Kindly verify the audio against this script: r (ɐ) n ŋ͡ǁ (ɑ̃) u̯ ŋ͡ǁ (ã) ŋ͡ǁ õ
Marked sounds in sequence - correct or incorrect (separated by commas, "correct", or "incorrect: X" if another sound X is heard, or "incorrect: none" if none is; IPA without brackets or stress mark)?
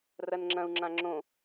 correct, incorrect: ɐ̃, correct